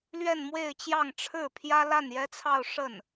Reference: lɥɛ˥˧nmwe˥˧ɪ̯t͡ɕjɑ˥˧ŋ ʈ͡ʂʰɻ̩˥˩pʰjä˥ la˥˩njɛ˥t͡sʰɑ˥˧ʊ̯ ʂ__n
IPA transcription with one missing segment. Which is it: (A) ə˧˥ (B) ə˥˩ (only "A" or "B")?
B